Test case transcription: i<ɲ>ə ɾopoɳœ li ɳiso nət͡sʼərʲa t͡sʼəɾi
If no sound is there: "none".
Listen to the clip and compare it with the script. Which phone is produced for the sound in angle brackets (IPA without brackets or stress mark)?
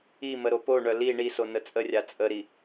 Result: m